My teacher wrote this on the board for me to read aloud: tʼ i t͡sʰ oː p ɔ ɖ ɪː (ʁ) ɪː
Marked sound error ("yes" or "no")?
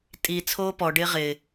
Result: no